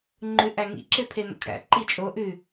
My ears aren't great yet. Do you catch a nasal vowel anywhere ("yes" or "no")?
no